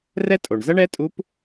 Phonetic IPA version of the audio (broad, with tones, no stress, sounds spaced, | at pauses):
r ɛ˥ tʼ o˩ ɳ z ɐ˥ ɳ ɛ˧˥ tʼ u˧˥ p